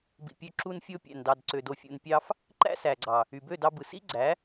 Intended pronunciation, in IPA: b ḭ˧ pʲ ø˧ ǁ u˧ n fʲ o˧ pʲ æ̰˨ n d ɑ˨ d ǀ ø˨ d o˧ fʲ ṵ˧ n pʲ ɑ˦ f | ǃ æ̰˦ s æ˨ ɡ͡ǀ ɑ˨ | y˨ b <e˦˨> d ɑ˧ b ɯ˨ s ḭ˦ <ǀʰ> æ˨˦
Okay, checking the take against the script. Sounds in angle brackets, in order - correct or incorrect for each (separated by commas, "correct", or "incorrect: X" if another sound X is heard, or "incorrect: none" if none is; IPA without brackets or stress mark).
incorrect: ø˦˨, incorrect: ɡ͡ǀ